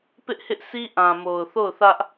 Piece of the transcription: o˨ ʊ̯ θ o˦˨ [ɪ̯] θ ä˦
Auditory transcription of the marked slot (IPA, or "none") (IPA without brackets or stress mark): ʊ̯